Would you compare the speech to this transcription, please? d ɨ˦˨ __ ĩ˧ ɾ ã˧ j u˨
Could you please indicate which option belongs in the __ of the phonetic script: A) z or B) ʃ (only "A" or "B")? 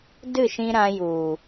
B